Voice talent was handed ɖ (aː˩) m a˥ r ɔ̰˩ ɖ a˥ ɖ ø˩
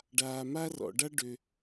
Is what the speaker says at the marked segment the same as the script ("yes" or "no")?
yes